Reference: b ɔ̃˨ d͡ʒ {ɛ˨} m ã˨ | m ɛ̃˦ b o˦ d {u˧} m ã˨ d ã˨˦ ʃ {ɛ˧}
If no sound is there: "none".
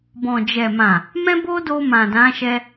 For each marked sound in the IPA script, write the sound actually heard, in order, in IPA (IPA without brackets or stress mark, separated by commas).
ɛ˨, o˧, ɛ˧